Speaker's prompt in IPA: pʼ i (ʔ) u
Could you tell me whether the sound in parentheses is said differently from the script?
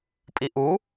no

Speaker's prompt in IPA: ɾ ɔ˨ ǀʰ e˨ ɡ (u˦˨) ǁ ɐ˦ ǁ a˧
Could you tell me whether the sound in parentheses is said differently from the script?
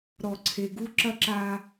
yes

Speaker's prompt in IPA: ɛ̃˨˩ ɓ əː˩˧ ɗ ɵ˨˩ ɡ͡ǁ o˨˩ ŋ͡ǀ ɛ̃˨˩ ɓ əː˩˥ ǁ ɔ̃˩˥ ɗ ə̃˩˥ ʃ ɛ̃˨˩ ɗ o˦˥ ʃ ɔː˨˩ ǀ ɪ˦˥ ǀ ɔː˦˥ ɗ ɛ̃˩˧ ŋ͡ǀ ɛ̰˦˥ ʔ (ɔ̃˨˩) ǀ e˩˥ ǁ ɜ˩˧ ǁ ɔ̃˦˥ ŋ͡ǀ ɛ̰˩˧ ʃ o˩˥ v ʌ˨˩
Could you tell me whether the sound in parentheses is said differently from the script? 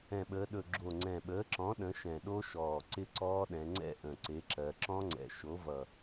yes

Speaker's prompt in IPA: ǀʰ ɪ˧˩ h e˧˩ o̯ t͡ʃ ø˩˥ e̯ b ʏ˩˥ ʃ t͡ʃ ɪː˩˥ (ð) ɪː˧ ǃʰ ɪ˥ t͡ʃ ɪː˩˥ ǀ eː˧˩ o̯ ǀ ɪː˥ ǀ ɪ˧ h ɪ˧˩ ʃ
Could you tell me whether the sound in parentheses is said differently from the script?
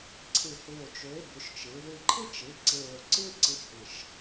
no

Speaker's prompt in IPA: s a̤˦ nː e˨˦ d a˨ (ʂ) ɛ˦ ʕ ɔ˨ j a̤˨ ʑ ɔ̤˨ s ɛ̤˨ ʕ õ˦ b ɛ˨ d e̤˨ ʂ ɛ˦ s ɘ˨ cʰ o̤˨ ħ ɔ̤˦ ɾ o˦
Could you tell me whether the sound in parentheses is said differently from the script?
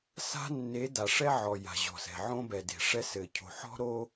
no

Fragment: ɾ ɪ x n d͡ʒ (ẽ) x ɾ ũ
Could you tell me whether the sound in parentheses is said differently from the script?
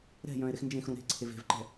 no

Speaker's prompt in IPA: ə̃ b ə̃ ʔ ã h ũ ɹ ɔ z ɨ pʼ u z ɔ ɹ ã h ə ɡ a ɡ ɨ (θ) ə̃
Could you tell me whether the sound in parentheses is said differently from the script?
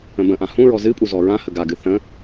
no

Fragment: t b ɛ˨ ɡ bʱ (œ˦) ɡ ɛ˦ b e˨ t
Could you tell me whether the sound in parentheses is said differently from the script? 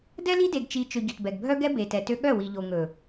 no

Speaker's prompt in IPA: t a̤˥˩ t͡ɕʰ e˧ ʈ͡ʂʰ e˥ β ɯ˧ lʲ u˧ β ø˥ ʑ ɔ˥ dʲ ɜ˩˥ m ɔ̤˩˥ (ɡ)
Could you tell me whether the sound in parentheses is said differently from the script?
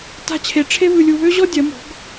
no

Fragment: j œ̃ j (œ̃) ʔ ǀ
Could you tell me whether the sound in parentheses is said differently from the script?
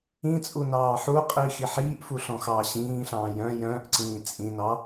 yes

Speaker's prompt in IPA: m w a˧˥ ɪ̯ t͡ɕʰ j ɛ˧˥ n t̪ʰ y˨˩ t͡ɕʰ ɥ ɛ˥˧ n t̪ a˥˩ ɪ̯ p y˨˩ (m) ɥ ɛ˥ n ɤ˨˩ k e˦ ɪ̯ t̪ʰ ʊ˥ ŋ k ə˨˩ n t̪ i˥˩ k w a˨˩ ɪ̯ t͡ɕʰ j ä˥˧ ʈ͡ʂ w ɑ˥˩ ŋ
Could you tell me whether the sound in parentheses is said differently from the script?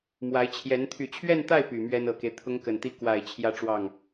no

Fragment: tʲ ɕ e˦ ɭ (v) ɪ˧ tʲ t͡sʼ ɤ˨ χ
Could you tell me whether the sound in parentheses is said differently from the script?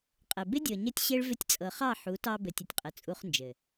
no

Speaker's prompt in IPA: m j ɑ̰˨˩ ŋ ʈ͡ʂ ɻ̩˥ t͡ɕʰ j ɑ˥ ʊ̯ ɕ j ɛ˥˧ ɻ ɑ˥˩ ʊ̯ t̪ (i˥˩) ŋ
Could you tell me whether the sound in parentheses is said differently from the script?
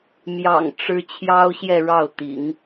yes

